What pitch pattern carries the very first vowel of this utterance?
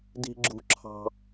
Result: high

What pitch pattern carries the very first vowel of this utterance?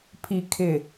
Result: low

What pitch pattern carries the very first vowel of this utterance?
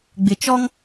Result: low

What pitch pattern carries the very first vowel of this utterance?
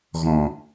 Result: low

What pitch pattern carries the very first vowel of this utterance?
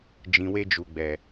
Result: low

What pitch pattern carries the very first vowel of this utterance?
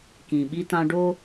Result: low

